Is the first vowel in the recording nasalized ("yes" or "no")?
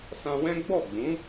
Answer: yes